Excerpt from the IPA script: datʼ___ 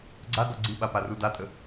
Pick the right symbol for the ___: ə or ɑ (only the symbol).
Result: ə